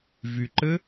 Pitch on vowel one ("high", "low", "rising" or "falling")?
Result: low